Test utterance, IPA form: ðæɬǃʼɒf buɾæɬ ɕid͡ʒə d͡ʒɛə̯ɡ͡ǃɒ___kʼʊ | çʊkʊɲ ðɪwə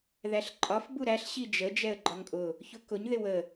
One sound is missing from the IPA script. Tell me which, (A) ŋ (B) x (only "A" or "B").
A